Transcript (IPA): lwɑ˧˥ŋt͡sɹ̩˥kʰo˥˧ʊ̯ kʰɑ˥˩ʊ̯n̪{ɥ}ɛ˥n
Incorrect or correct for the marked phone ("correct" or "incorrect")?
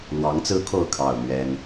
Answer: correct